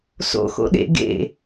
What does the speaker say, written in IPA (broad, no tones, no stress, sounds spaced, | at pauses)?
s o̰ x o̰ ɗ ḛ ɡ ḛ